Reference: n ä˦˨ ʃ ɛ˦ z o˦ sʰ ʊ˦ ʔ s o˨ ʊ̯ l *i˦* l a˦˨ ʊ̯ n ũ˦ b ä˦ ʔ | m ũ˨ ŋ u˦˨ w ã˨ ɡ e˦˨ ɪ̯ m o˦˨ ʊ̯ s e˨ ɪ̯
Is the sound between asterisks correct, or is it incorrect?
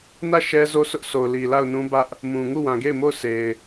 incorrect